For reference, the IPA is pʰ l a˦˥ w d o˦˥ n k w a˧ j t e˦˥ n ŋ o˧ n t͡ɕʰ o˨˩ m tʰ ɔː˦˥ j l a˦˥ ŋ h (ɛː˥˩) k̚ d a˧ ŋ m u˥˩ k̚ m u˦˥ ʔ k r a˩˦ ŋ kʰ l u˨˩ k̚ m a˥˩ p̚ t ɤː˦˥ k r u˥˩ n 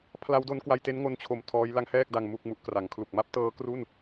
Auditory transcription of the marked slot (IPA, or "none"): ɛː˥˩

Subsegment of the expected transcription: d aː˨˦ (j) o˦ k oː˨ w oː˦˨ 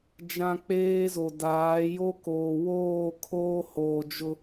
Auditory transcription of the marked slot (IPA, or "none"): j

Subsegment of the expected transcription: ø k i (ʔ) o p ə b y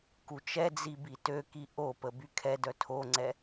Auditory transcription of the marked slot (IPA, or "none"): ʔ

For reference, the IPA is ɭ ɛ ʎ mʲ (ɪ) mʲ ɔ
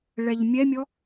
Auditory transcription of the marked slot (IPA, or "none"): ɛ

